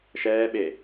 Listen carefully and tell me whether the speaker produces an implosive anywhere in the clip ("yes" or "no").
yes